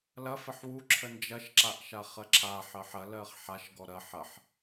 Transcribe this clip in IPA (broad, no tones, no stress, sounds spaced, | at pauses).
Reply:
l ɐ f ə ħ w u ǁʰ ə n d͡ʒ ɐ ʃ ǁ a ʔ ʃ a χ ɜ ǁʰ a ħ ɜ ħ ɐ l ɜ χ ħ a ʃ ɡ ɔ ɾ ɐ ħ ɐ ħ